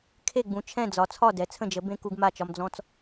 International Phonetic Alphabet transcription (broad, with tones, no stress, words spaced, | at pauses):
kʰe˥˩ɡ͡bũ˩˥t͡ʃʰɛ̃˥˩ d͡zɒ˩˥t͡sʰɒ˥˩dɛ˩˥ t͡sʰə̃˥˩d͡ʒə˩˥ bẽ˦ ku˦ɡma˥˩t͡ʃɒ˦m d͡zɔ̃˦t͡s